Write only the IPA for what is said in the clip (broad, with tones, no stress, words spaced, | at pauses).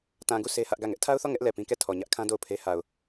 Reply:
tã˨ɡu˦˨ sʰe˦hä˦ʔɡä˦˨ ŋɛ˦ʔtʰa˦ʊ̯θɔ˦˨ ŋɛ˦ʔ lɛ˨pĩ˦kɛ˦˨ tʰɔ˨ɲä˦ʔkʰã˦ do˦˨ʊ̯pʰe˦ ha˨ʊ̯